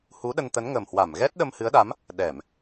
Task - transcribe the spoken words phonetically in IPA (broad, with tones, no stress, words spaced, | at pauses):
hu˨˦ɗə˧nt̪ə˨˦n ŋə˨˩mhwa˧˩m ɣɛ˦˥t̚ɗə˧mhɨ˨˦ə̯ɗa˨˦m | ɗɛ˧˩˨m